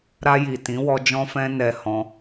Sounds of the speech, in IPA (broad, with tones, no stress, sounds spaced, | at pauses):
ɾ a˧ j i˨ t ĩ˨˦ w ɔ˧ d͡ʒ ɔ̃˧ f ɛ̃˧ n ɛ˧ h ɔ̃˧